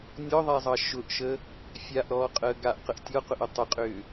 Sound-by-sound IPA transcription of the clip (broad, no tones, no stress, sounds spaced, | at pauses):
nʲ ɔ ðˤ a zˤ ɑ ʃ ʊ ʔ ʃ ə | fʲ a ʔ ɾ ɔː qʼ əː ɡ a ʔ q ə ʔ tʲ ɔ q ʊ ʔ ʏ tˤ ə qʼ ʏː